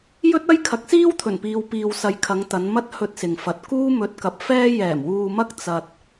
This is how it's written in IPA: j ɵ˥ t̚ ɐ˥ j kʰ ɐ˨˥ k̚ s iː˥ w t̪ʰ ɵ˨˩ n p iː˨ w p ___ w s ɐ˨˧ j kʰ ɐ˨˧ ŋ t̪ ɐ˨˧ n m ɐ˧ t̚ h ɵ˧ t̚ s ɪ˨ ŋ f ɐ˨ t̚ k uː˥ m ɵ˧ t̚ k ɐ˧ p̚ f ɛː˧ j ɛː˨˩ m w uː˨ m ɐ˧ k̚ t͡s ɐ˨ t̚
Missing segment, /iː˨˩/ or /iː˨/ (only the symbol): iː˨